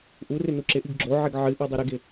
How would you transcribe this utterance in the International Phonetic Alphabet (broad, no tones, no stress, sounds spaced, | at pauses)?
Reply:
ʔ u r ɪ n u ǁ ɪ ʔ i ɡ ɡ͡ǁ o ʕ ɪ ɡ ʕ ɨ ʔ u dˤ i ɾ ɪ ɡ ɪ